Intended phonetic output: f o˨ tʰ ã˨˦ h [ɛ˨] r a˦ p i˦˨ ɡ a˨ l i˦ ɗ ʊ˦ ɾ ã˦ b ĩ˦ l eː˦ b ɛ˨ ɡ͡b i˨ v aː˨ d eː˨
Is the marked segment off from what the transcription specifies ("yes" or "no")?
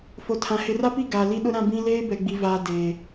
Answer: yes